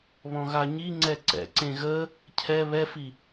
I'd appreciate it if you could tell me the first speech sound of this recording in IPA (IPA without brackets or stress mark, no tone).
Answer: β